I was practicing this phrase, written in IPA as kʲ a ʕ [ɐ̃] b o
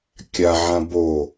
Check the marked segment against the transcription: incorrect: ã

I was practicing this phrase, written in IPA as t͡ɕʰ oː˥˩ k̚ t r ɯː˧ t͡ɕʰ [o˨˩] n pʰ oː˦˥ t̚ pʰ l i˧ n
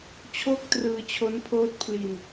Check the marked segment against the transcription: incorrect: o˦˥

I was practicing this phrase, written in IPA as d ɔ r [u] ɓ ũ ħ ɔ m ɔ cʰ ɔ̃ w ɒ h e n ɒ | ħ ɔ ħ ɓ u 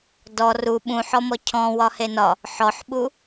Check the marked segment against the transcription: correct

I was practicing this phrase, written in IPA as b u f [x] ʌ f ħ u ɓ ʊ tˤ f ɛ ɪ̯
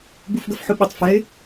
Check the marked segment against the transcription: incorrect: ɡ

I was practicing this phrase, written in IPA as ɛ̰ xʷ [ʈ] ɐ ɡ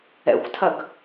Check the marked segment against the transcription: incorrect: tʰ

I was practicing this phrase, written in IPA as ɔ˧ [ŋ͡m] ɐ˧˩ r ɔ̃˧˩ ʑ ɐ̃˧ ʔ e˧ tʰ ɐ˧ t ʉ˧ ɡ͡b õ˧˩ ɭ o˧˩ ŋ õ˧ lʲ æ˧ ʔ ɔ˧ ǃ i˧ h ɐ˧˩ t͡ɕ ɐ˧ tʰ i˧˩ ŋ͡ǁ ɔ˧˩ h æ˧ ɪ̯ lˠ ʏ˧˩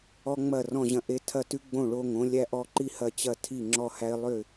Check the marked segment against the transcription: correct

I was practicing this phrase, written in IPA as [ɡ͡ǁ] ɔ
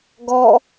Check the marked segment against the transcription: incorrect: ɡ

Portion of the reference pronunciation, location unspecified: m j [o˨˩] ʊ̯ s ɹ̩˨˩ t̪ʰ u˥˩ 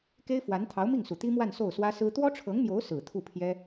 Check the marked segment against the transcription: incorrect: o˧˥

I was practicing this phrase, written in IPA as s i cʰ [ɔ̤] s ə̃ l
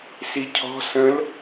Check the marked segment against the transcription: correct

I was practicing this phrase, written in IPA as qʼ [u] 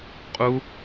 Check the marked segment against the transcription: correct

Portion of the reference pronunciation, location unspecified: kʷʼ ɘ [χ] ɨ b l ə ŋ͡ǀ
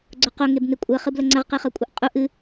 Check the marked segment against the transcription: correct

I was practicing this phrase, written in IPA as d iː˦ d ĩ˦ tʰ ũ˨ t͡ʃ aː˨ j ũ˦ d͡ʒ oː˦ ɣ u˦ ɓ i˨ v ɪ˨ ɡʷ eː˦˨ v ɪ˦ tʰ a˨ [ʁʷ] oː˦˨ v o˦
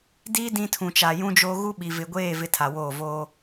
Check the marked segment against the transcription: incorrect: w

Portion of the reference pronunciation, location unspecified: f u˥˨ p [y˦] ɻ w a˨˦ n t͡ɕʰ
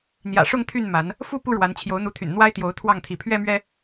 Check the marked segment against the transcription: incorrect: u˦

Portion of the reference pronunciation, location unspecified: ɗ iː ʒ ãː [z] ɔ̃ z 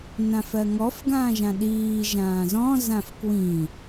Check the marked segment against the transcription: correct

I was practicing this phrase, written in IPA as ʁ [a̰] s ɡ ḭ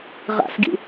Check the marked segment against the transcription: correct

